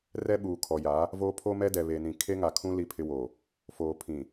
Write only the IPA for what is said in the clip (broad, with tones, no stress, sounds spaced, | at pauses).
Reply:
r ɛ˦ ɓ uː˨ kʰ ɔ˨ j a˨˦ | v oː˦ pʰ o˦ m ɛ˦ d ɛ˨ β e˨ n ĩ˨ kʰ e˦ ŋ a˨ kʰ ũ˦ l i˦ pʰ ɪ˦ w o˨ | f oː˨ pʰ ĩ˨